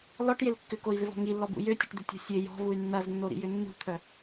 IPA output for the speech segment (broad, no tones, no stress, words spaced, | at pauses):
lɔʈjɪl kːʏkoi̯vɪvɔ̤ ŋilːɔbṵ jøtʲəʈd̪ɪtʲɔ̤ sʲø jɔ̤vuy̯ nːɐznːoɾḭjʏ nːṳt̪ʰœ